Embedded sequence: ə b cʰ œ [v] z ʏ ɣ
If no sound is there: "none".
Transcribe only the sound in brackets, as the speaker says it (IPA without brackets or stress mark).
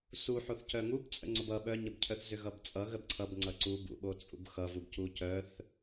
θ